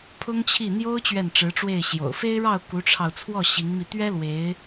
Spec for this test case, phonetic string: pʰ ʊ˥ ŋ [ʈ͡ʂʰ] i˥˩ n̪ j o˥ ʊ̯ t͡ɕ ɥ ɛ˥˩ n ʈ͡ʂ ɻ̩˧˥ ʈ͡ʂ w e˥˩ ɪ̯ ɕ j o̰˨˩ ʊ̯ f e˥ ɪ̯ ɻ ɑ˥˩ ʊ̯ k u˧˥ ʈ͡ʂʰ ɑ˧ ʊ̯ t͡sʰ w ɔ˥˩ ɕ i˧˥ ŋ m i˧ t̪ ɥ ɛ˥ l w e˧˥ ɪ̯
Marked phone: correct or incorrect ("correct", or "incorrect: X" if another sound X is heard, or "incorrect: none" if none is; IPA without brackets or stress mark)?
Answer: incorrect: t͡ɕʰ